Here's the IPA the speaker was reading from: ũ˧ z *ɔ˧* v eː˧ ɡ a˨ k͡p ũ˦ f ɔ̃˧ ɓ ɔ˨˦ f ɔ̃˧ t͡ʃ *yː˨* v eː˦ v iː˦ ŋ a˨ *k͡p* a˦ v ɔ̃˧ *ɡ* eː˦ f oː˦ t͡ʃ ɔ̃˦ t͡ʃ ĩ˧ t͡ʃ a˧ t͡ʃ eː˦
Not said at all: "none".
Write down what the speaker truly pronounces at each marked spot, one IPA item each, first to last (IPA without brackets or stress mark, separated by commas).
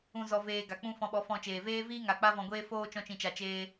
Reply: ɔ˧, eː˨, k͡p, ɡʷ